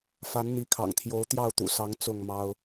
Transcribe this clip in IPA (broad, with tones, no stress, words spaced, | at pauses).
fa˨˦nn̪i˨˦kʰɑ̰˨˩ŋt̪ʰjo˨˦ʊ̯ t̪jɑ˥˨ʊ̯t̪ṵ˨˩sɑ˨˦ŋ t͡sʊ˥˨ŋmɑ˦ʊ̯